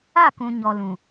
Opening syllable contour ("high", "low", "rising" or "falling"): falling